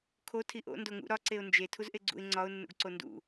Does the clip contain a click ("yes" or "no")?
yes